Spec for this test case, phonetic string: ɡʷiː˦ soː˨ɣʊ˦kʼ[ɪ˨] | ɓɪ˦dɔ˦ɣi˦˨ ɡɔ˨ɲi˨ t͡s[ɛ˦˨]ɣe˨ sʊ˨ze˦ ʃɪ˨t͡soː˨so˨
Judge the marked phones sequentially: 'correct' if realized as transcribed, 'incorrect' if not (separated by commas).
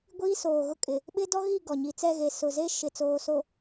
correct, correct